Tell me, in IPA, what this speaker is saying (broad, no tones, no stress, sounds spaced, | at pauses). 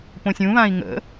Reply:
p õ sʲ ũ β ã i̯ ŋ ə̰